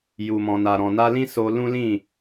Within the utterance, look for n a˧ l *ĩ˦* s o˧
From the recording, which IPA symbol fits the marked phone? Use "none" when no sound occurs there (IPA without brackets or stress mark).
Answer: ĩ˦